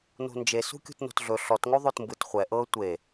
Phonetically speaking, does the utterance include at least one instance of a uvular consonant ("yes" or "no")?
yes